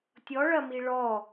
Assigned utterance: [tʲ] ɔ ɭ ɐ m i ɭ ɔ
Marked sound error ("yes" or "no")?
no